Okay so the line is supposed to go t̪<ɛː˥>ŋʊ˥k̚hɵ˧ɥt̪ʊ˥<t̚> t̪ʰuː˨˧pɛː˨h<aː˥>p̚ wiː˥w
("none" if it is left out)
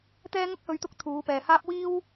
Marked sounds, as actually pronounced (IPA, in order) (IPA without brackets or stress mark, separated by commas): ɛː˥, k̚, aː˥